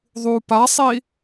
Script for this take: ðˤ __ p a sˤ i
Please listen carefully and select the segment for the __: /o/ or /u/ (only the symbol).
u